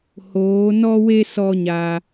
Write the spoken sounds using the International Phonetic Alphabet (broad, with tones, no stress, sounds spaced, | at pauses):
h oː˨˦ n ɔ˦ w e˦ s ɔ˦ ɲ a˧